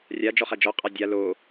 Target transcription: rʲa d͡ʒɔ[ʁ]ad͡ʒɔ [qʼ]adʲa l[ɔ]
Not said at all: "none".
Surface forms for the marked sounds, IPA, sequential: χ, qʼ, o

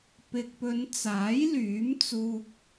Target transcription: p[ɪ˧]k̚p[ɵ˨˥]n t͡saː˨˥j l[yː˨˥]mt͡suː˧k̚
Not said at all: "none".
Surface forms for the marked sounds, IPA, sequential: ɪ˨, ɵ˨˧, yː˨˥

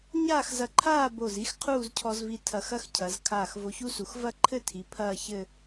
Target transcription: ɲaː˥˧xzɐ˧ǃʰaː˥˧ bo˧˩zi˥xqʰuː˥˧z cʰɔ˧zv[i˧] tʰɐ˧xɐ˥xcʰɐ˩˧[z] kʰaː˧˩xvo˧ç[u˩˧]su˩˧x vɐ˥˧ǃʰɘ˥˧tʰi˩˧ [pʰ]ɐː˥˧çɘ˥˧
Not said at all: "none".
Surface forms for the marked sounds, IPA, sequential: i˧, z, u˥, pʰ

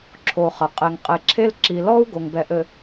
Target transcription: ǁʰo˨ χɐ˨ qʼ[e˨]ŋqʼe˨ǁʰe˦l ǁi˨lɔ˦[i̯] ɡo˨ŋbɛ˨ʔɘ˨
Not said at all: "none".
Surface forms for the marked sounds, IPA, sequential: e˨, u̯

